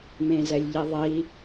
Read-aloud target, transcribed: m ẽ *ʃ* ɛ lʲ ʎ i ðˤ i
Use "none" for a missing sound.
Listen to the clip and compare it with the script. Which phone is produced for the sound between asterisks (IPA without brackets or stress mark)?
z